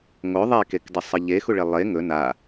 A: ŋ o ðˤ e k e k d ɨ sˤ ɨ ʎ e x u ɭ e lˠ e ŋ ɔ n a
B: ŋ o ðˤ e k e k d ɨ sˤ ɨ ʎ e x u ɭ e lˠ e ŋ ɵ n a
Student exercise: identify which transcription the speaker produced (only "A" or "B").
B